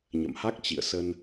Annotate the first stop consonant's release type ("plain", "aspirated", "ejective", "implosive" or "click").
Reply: plain